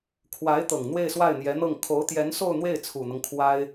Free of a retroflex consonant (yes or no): yes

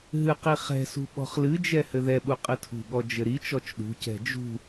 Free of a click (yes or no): yes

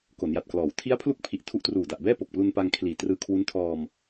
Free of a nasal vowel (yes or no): yes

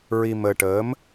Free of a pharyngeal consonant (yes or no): yes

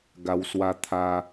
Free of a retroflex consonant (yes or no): yes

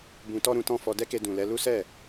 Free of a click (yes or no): yes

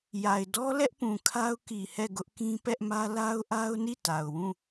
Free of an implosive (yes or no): yes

